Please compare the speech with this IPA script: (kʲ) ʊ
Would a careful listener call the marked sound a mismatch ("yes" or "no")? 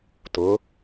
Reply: yes